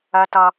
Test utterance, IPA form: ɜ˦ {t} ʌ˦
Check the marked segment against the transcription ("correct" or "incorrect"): correct